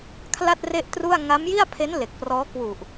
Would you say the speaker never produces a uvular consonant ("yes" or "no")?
yes